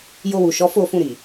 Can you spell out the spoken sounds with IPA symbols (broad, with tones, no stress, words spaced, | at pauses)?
jo˧wu˨ ʃɔ˨˦fo˦˨fũ˧ɾi˨